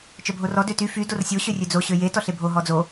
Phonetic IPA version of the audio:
t͡ʃ œ bʱ o r ɔ d ø t y f y d o r sʲ o ɕ ø rʲ ø d͡z o ɕ ø j e t ɔ ɬ e bʱ o ɦ ɔ d͡z o

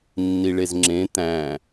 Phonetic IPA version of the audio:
nː i ɭ e z ŋ͡ǁ ẽ t̪ æ̃

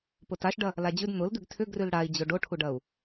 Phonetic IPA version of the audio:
p ʊ t a ʃ ɖ ɐ | l a d͡ʑ ʉ d n̪ ʊ l d̪ ʉ ɡ tʰ ʏ ɡ r ʉ l ɽ a i̯ d͡ʑ o ɖ o ʈʰ u ɖ ɐ u̯

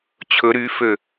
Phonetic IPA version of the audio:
t͡ɕʰ ɵ ɾ y f ø

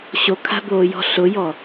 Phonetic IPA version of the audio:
ɕ o kʰ a̤ b oː j ɔ̤ ɬ ʊ j ɔ

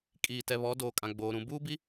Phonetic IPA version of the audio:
kʼ iː˨ t ɛ˨ β ɔ˨˦ d oː˨ kʼ ã˨ ɡ͡b oː˨ ɾ ũ˨ b uː˦ b i˨˦

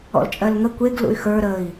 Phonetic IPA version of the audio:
ɔ̰ l t͡ʃʼ ɜ l ŋ ə kʷ e ɡ l ṵ y̯ x ə˞ ɾ ə i̯

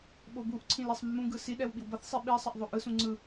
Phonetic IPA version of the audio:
ɓ o b u ʔ ǀʰ ĩ l e sˤ mː ũ ɡ ɯ s i ɗ ɛ w ɓ i w b ʌ θ sˤ i ɓ i sˤ ʌ ʔ ðˤ o ʔ ɯ s ũ ŋ͡ǀ ɯ

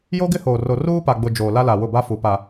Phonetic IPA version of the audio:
j o˦ ɡ ɪ˦ h oː˨ r o˨ r uː˦ p a˨ ɡ͡b ʊ˨ d͡ʒ oː˨ l a˦ l a˨ w ʊ˦˨ b a˦ f u˨ p a˨

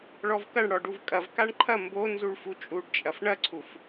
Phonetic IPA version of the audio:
ɭ ɔ v k ɐ ɳ ɽ ɔ ɖ u v kʼ ɐ v k a ɳ ǃʰ ɐ m b o n z u ɭ f u t͡ʃʼ u ɖ t͡ʃʼ ɐ f ɳ ɐ ǀʰ u f

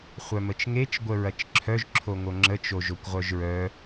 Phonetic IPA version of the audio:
χʷ œ m ə t͡ʃ ŋ e t͡ʃ ɡʷ ə ɹ ɐ t͡ʃ ǁʰ œ ʒ ǁʰ o ŋ o ŋ͡ǁ ə t͡ʃ o ʒ o kʷ ʁʷ œ ʒ ɹ œ

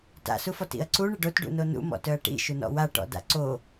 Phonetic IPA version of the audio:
t a̰ s u f ɔ t ḭ ɐ̯ ǀ u ɳ ɪ ɖ o t ɖ ṵ n o n ṵ m ɔ̰ t œ ɐ̯ ʈ ḭ ʃ u n ɔ̰ w a ʈ ɔ̰ d a̰ ǀ o

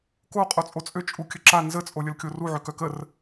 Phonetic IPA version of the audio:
k o qʼ o t͡sʼ o t͡sʼ ø t͡ʃʼ u kʲ ə ǁ a n z ə t͡sʼ o lʲ ə l kʲ o r u ʕ ø k œ k ə r

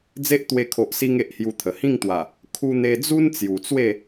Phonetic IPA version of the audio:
d͡z e˦ ʔ t̪ w e˧ kʰ o˨ ʔ s i˧ ŋ e˨ ʔ h j u˧ t̪ʰ ə˨˩ h ĩ˥˧ ŋ t̪ w a˨˩ | kʰ u˧ n̪ e˧ d͡z u˦ n t͡s j u˨˩ t͡s w e˥˧

